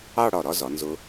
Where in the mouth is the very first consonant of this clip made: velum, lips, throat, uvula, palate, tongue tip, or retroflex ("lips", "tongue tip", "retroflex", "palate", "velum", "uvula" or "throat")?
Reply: retroflex